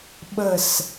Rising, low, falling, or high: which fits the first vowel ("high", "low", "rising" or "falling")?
falling